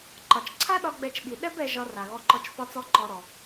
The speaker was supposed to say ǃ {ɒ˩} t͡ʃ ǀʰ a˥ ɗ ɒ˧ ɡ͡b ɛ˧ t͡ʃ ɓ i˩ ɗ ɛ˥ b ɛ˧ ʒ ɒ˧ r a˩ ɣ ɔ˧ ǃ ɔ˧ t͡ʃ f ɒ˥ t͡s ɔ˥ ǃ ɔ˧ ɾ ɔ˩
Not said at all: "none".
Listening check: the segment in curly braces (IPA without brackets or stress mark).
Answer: ɒ˩